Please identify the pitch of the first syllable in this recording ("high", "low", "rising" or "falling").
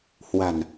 low